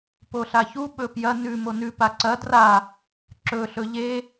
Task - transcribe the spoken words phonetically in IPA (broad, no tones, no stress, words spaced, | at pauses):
poɬaçu ɓɵpjɐ nʉ monʉ paǀɐ dra | ǁɵ ɬɵʎe